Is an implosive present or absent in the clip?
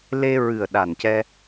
present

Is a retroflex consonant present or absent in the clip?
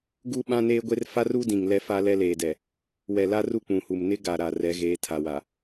absent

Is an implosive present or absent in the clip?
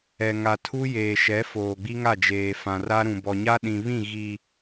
present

